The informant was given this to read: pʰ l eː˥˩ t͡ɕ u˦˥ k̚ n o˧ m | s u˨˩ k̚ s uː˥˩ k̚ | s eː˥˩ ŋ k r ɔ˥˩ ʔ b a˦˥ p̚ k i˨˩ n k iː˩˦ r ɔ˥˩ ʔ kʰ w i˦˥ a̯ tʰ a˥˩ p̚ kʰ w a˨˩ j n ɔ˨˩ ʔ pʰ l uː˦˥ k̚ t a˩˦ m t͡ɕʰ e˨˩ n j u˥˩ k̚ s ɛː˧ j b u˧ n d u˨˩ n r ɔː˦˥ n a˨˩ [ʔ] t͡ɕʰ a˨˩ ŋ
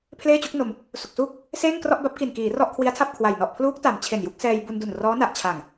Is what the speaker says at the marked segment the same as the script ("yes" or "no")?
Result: yes